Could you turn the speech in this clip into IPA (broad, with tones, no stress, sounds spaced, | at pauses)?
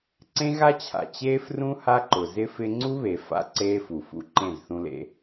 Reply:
ǀ ẽ˦ ɣ a˦ t͡ɕʰ a̰˨ t͡ɕ eː˦ f r ũ˦ h a˦ ǃ ʊ˨ z ɪ˦ f ɪ˦ ŋ͡ǀ u˦ β e˨ f a̰˦ ǀ eː˦ f u˨ f ṵ˦ ǃ ẽ˦˨ z θ ũ˦ l ḛ˦